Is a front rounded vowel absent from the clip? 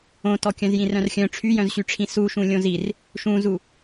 no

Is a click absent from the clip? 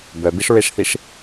yes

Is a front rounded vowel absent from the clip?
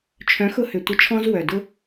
no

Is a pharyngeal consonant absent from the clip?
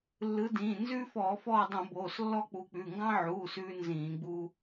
no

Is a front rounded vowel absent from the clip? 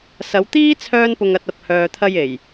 no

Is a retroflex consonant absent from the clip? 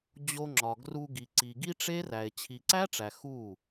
no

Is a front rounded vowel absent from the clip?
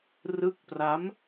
yes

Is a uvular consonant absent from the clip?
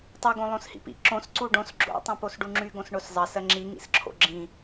yes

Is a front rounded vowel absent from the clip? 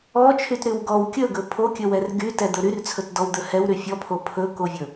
no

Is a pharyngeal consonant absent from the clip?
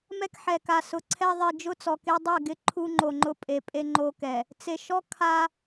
no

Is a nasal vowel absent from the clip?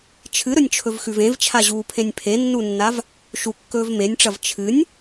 no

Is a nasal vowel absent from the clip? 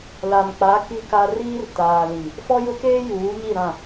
no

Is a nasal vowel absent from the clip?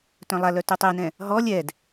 no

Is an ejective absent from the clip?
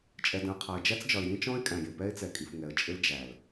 no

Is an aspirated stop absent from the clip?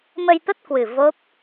yes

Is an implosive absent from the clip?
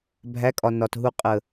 yes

